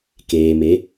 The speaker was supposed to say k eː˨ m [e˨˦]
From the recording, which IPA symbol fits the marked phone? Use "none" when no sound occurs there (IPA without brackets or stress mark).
e˨˦